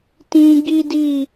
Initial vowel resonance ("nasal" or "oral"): nasal